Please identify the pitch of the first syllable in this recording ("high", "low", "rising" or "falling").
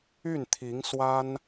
falling